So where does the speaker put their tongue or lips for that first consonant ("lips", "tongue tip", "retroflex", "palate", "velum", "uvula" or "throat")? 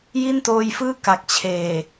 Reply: palate